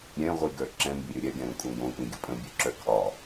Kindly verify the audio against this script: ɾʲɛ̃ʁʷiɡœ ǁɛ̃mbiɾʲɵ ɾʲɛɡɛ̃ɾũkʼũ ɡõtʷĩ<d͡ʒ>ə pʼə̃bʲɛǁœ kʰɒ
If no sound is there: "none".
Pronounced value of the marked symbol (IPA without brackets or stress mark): ɡʲ